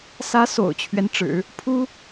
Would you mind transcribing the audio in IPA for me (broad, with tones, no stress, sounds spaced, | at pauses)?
s ä˧˥ s o̰˨˩ ʊ̯ t͡ɕʰ ɥ ɛ˦ n ʈ͡ʂ ɻ̩˨˩˦ | pʰ u˥